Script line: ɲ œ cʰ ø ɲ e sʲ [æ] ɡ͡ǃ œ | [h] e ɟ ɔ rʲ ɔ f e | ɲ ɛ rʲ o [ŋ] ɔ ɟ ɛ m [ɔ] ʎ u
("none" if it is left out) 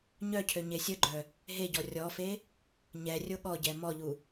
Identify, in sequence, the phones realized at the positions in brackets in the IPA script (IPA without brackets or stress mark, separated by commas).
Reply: ə, ɦ, ɠ, ɔ